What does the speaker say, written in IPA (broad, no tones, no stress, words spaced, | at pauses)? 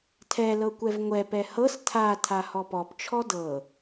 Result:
tʰɛ lɤkʷɛvŋʷɛ pɛhɤs tʰa tʰahɔpɔp t͡ʃʰɔdɤ